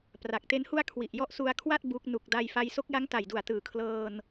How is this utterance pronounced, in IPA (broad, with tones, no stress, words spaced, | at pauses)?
pra˨˩k̚te˦˥nhu˥˩a̯ kʰwi˨˩ʔjɔ˦˥ʔ su˧a̯kʰwa˥˩t̚ bu˦˥k̚ nu˨˩k̚da˧j fa˧jso˦˥k̚ ja˦˥ŋta˨˩jdu˨˩a̯tɯː˩˦ kʰlɤː˧n